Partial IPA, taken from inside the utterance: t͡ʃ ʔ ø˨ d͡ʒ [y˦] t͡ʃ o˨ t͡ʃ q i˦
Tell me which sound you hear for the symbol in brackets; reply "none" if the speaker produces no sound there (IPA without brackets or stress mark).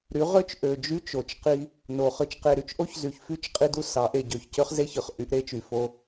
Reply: y˦